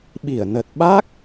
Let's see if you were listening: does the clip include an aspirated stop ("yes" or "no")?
no